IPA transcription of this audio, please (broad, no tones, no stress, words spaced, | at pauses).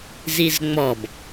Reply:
zizŋ͡mɔb